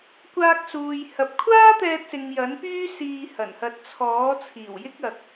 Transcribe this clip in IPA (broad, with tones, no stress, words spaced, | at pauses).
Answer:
kʷaː˧k̚suː˨j hɐ˨p̚kʷʰaː˥t̪ɛː˧t̚sɪ˨ŋ jɐ˨˥npyː˥ siː˧hɐ˨˩nhɐ˧t̚ t͡sʰɔː˨˥t͡sʰiː˨˩w jɪ˥k̚ɐ˨k̚